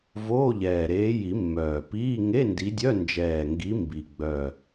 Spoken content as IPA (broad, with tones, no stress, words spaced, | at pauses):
voː˧˥˧ʎɛː˨˩ɾeː˨˦ji˨˩˦ mːœː˨˩piː˧˥˧ ŋe˧˥˧ndi˨˦dʲœ˧˥˧ nd͡ʒɛː˨˩ŋɡi˨˦ mbi˨˩ɡ͡bœ˨˩